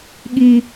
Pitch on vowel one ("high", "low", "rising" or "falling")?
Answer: high